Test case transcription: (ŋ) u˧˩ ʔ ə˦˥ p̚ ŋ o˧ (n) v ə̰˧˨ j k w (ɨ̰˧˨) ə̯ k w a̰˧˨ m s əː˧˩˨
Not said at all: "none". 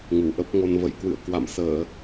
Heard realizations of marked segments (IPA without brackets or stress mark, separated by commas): ŋ, n, ɨ̰˧˨